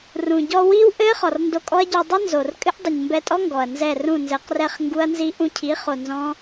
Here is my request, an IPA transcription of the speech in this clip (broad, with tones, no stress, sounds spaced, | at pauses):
r ũ˨ ɟ ɔ˧ w i˦ w ʔ ɘ˦ χ ɔ˨ r n d o˧ kʼ ɔ˦ ɐ̯ ɟ o˧ dˤ ɘ˦ n z o˨ r kʼ ɘ˦ ʔ dˤ ɛ˨ ɲ m b ɛ˧ tʼ ɔ˦ ŋ ɡ ɔ˨ ɐ̯ n z ɛ˦˨ r ũ˦˨ n z ɘ˨˦ q r ɛ˦˨ χ ŋ ɡ u˦ ɐ̯ n z i˦ ʔ ũ˧ cʰ i˨˦ χ o˨ n z ɔ̃˦